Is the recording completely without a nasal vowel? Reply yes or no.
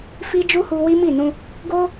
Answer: no